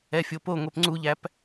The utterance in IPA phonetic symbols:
ɛfʲopo ŋʷɛpŋ͡ǀuʎæp

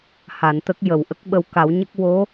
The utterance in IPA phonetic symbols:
ha˨˩˨nt̪ə˦˥k̚jə˨˩˨wʔə˦˥k̚ ɓə˧wka˨˩˦wɲə˦˥k̚ wo˧˥

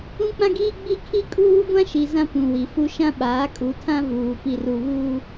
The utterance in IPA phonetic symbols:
ũ˦k͡pã˦ɡiː˦ ɡ͡bi˦kʰi˦kʼuː˦ ɡʷã˦ʃi˨ zã˦pũ˨wi˨fu˦ ʃã˦ɓaː˨˦kʼu˨˦tʰã˦ vuː˨ pi˨ru˨βuː˦

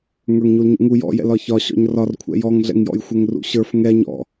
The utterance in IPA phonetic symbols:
ŋə˞ŋɲulɲṵŋu jɔ̰jɛ̰l ɒçɒ ɕɔ̰ɲrɒrkʷʰɛ̰ jɔŋɮɛ̰ŋjɔ̰jxʷɛŋ rṵɕə˞f ŋɛ ɲɔ̰

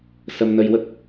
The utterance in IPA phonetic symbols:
sə˧mnə˧jwə˦˥k̚

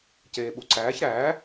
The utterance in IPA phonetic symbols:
ceːɓuǀæːç ɾæː

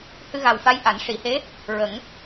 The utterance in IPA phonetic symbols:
hɨ˧ɣa˨˩wfa˧˥j ʔa˨˩˦n ʂi˨˩˦he˧˥ | ɹə˨˩˦ŋ

